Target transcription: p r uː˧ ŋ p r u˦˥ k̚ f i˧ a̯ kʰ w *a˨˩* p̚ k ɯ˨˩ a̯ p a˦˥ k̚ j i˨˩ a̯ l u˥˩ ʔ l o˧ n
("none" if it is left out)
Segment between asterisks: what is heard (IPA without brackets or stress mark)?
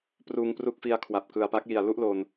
a˨˩